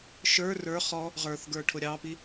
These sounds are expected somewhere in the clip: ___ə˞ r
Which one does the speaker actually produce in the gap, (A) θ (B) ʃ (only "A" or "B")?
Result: B